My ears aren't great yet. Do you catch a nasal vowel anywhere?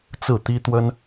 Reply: no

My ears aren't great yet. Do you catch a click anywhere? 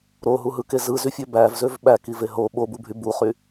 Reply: no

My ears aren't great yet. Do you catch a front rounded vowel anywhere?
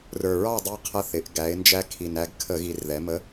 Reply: no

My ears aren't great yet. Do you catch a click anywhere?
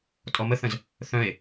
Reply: no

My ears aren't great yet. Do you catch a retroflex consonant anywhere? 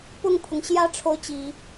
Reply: yes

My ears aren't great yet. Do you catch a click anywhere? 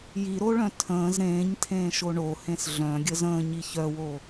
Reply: no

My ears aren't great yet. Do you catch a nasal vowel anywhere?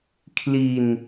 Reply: no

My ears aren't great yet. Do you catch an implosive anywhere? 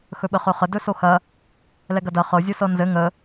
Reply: yes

